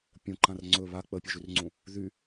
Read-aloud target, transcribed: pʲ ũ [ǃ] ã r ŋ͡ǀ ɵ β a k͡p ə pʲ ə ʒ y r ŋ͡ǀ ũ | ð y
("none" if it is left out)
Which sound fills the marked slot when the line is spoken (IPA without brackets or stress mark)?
ǃ